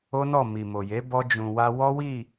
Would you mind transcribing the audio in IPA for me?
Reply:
o˦ n ɔ˦˨ m i˨ m o˨ j e˨˦ b ɔ˧ d͡ʒ ũ˨ w a˧ w ɔ˦ w i˦˨

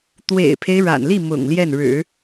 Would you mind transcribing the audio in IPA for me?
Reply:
t̪ w ḛ˨˩ ɪ̯ pʰ e˦ ɪ̯ ɻ a̰˨˩ n l i˥˩ m ʊ̰˨˩ ŋ l j ɛ˥˩ n ɻ ɻ̩˨˩˦

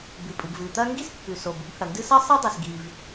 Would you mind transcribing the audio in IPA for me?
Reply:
b ɨ˩ pʼ ɨ˩ b v ɨ˩ t̪ ɐ˥ ŋ ɡ i˥ s pː ʉ˩ s o˩ b u˥ b h ɐ˩ n d ɨ˥ s ɐ˥ sˤ ɨ˥ dˤ i˩ s ɡ i˩ v

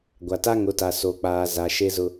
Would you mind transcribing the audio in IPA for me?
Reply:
ɡʷ a˨ t a˦ ŋ ʊ˨˦ t a˨ s o˨ k͡p aː˨ z a˨ ʃ e˦ z ʊ˦

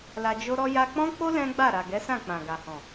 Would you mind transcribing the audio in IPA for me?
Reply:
l a˧ d͡ʒ o˦ ɾ ɔ˦ j a˧ k͡p ɔ̃˦ k͡p o˦ l ɛ̃˦ ɡ͡b a˦˨ ɾ a˨ ɡ ɛ˨˦ s ã˦˨ k͡p ã˨ ɡ a˨ h ɔ̃˨

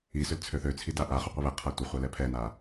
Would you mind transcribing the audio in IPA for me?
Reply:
i s ʏ l t͡sʰ ø θ ø t͡sʰ i d a ʔ a χ ʏ qʷ i β ɛ qʰ a tʷ ɪ χʷ a l ɛ pʰ ɛ n a

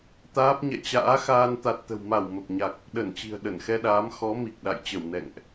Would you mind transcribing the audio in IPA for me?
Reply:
t̪ aː˦˥ p̚ ɲ ɛ̰˧˨ t͡ɕ a̰ː˧˥ x aː˧ n t̪ a˨˩ t̚ t̪ ə̤˨˩ w m a˧˩ w m ə˨˩ p̚ ɲ a˨˩ k̚ | ɗ ə˧˩ n t͡ɕ i̤˨˩ ə̯ ɗ ə˧˩ n x ɛ˧ ɗ aː˨˦ m x ɔ˨˦ m i˨˩ k̚ ɗ a̰˧˨ j t͡ɕ ə˧˩ w n ɛ̰˧˨ ŋ ʔ

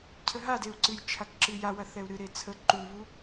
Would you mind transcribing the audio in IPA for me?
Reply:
cʰ ə ɦ a d e u̯ ǀ ɨ j t͡ʃʰ a k ǁ ɨ j a w ɐ θ ɛ u̯ ɾ ɨ ɾ e t͡sʰ ə ǃ u β u

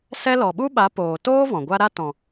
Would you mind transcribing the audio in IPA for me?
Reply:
s ɛ˦ l ɔ˨ ɓ u˦ ɓ a˨˦ p oː˨ t oː˦ v ɔ̃˨ ɡʷ a˦ ɾ a˦ t ɔ̃˨

